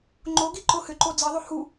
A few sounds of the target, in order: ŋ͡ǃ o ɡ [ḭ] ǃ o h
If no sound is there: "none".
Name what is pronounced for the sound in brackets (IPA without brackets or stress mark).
i